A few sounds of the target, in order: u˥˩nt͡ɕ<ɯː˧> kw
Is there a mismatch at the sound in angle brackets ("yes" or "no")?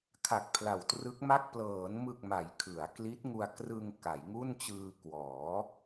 no